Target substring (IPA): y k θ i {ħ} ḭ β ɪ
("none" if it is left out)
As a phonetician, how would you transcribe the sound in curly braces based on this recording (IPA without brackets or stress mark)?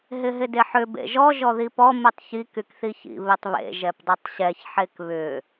ç